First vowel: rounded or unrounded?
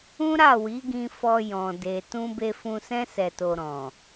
rounded